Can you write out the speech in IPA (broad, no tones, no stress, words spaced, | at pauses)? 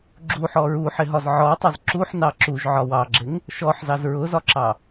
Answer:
ɡ͡ǁuħɔ ɹuħɪɦɒz ʕɔtˤʊz ǁuħnɑ ǁuʒʕɒ wɑɡ͡ǁɪŋ | ʃɔħzɑz ɹʊzɒǁɑ